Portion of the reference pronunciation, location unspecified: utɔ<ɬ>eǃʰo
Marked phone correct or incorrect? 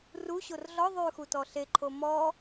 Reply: correct